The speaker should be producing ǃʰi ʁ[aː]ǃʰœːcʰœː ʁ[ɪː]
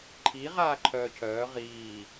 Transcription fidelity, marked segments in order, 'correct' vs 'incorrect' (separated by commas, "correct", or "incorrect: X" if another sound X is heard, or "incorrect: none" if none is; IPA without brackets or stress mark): correct, incorrect: iː